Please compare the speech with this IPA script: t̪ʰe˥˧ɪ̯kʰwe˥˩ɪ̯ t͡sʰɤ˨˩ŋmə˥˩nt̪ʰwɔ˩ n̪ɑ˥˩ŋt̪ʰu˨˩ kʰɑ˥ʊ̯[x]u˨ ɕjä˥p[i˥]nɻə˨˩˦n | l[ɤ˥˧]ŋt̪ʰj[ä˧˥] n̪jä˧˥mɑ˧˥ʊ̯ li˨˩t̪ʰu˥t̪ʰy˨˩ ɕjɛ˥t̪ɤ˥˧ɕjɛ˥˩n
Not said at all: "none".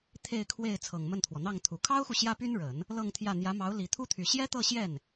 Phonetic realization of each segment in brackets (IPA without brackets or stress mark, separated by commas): x, y˥, ɤ˥˧, ä˥˩